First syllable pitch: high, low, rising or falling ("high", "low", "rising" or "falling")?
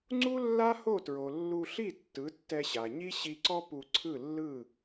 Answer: high